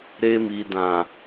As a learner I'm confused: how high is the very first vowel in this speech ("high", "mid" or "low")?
mid